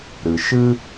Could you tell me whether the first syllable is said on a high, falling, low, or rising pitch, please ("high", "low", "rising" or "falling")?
low